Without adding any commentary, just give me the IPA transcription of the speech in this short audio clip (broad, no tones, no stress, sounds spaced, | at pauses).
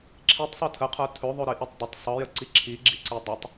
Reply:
ǁʰ i tˤ sˤ ə˞ tʰ ə qʰ ə˞ tʰ ɵ ðˤ ɵ ɾ i ʔ i tˤ dˤ ə tˤ sˤ ɤ j ə ǀ i ǁʰ i ɡ͡ǁ i ǀ i dˤ ɵ tˤ